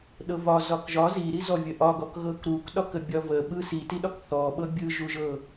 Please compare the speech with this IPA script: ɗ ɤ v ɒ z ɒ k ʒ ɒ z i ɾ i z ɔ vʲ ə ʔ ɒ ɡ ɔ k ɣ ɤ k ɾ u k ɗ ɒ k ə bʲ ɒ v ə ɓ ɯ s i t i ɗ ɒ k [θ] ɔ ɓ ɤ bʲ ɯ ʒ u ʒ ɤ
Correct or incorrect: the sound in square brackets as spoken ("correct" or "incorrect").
correct